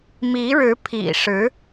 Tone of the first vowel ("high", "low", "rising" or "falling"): rising